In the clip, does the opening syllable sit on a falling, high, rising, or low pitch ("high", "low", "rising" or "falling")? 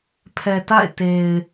low